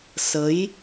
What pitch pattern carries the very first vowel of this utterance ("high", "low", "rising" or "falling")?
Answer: rising